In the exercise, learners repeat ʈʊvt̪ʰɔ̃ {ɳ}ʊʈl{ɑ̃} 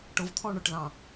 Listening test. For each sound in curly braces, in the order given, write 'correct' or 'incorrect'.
correct, correct

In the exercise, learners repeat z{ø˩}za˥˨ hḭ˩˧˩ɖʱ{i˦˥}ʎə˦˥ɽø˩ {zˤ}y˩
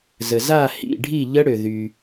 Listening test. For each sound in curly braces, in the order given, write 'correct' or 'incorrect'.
incorrect: ə˩, incorrect: i˥˨, incorrect: ð

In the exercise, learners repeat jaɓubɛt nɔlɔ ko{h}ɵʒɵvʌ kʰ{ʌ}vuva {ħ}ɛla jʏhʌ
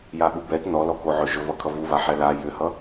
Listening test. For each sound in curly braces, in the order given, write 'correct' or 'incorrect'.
incorrect: ʕ, correct, correct

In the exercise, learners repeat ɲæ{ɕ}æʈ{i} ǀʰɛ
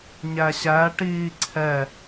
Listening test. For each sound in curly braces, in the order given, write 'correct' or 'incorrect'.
correct, incorrect: iː

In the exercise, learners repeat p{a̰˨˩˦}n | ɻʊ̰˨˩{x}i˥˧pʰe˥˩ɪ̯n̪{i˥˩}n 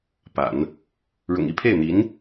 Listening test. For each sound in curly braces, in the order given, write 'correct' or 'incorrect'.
correct, incorrect: ŋ, incorrect: i˧˥

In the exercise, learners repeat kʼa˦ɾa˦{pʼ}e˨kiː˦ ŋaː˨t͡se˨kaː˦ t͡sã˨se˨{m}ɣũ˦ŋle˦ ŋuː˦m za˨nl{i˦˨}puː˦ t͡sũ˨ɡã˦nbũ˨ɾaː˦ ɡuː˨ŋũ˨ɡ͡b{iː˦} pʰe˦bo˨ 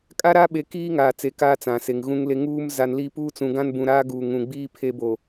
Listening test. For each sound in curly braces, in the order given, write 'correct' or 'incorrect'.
incorrect: ɓ, incorrect: ŋ, correct, correct

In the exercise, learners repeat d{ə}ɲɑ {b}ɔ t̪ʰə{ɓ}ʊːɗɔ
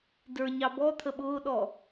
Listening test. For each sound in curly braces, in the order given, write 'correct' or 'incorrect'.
incorrect: ə˞, correct, correct

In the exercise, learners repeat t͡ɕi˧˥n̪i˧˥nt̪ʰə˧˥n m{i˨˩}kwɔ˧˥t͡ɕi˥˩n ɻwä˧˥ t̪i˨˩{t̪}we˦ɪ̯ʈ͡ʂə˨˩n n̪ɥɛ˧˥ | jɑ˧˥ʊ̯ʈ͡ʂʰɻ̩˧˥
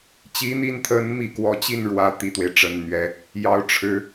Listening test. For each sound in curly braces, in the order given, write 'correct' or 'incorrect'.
correct, correct

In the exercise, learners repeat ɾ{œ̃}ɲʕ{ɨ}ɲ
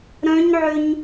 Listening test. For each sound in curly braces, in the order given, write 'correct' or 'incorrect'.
correct, incorrect: ʏ

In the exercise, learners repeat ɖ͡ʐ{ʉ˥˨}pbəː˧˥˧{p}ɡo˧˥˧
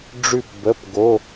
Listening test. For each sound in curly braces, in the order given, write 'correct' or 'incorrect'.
correct, correct

